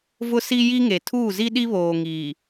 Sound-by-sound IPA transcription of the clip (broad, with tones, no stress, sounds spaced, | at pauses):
v ʊ˦ s i˦ j i˦ ŋ e˨ tʰ uː˦˨ z i˦ ɗ i˦ β oː˨ ŋ iː˨